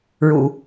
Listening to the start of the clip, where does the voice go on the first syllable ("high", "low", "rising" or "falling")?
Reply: low